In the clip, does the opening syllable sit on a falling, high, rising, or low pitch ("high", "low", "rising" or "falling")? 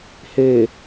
low